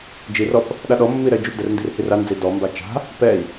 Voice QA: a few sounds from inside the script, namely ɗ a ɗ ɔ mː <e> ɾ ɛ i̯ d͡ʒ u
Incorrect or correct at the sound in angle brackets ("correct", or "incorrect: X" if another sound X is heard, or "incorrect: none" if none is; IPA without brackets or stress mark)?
incorrect: i